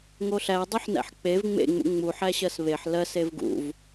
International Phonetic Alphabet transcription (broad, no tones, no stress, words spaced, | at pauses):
ŋoɬædˤuħnæ̰ħ k͡pev ŋ͡mḛŋ͡mṵ ŋ͡mu ħæɕɜsβeħ lɜs evɡṵv